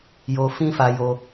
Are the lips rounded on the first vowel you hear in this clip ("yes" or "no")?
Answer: yes